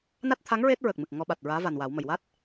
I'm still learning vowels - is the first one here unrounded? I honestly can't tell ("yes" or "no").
yes